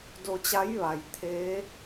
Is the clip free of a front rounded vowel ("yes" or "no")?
yes